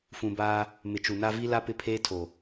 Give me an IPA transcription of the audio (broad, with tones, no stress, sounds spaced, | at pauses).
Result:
f ũ˨ b aː˦ | m ɪ˨ t͡ʃ u˨ n a˦ v i˦ l a˦ p ɪ˦ pʰ eː˦ tʰ o˨